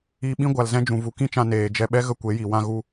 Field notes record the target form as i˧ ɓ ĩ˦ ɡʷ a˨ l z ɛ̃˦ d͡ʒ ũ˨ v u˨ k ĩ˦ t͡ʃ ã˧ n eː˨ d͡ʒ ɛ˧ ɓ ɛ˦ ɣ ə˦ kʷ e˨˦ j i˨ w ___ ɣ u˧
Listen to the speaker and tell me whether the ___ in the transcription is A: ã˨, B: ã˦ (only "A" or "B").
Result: B